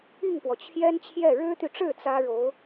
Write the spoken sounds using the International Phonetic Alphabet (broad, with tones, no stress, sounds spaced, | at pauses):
i˥˩ ŋ p w ɔ˩ t͡ɕʰ j ɛ˥ n t͡ɕʰ j ɛ˥˩ ɻ ɻ̩˥ t̪ y˨ ʈ͡ʂ ɻ̩˥˩ t͡s ä˥ ɻ o˧˥ ʊ̯